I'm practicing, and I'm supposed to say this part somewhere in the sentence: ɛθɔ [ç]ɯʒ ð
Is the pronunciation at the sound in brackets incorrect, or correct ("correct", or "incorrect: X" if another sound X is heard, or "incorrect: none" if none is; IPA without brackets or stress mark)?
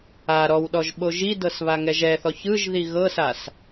correct